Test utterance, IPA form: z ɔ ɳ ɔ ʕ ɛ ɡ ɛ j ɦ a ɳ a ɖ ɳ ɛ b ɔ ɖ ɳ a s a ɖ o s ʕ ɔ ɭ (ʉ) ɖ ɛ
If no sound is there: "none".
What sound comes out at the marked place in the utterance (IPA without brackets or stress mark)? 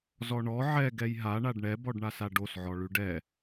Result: ʉ